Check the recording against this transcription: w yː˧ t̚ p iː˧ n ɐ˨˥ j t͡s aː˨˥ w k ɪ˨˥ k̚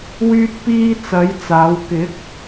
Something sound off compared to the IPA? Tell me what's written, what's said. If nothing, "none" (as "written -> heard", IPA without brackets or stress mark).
n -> t͡s